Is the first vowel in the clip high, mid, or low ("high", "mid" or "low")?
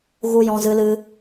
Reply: high